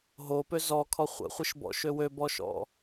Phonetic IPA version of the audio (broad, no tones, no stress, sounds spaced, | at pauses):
ɦ o p ø z ɔ kʰ ɔ χʷ ə̰ χʷ i ʃ b ɔ̰ ʃ ø w ø b ɔ ʃ ɔ̰